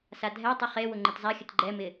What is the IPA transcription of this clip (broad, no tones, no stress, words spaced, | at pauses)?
sadʱɛtˤʊ χe wʊŋ͡ǃɪtzˤaxʲət ɡ͡ǃɛmɪ